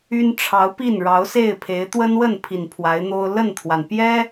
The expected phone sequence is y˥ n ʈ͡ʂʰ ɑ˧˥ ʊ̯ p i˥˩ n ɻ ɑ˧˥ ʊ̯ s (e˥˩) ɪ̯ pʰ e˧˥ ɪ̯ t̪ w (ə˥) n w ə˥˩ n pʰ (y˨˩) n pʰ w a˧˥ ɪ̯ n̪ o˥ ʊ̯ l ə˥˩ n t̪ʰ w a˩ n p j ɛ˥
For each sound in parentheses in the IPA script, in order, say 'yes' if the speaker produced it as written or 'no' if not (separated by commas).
yes, yes, no